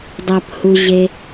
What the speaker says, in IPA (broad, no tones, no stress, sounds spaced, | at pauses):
dˤ ɐ p h u ʑ e